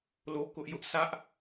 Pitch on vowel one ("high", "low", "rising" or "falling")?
high